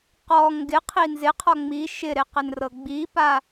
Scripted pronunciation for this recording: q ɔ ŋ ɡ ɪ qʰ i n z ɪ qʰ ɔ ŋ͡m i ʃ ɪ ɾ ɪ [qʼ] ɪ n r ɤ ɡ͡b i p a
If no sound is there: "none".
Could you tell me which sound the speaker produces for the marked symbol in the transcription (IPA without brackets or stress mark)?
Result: q